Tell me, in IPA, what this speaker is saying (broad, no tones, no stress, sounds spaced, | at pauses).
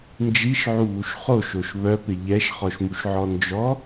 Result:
n d͡ʒ i ʃ ʕ u β u ʃ χ o ʃ o ʃ β œ p ɪ ʎ ɛ ʃ χ ɔ ʃ m u ʃ ʕ ɔ n d͡ʒ ɔ